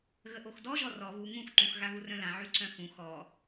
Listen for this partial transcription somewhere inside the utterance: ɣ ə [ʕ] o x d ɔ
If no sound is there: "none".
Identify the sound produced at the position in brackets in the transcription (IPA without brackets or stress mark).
ʔ